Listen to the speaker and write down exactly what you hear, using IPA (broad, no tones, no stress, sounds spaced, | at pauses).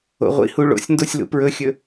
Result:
o̰ ʁʷ ḭ h u ɭ o̰ sʲ n d o sʲ l ṵ p ɹ ɵ xʲ ɵ